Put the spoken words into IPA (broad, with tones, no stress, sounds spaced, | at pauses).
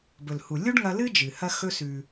b ɵ˩ l h u˩ lʲ u˥ ɖ ŋ ɐ˧ l ɨ˥ d͡ʒ ɨ˩ h ɐ˧ x ɵ˧ s ʉ˩